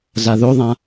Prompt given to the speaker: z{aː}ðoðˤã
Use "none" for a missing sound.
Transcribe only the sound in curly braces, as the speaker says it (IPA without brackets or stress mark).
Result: a